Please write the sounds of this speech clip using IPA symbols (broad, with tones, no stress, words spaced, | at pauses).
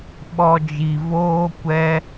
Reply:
ɓɔ˧d͡ʒi˨voː˦ kʷɛ˧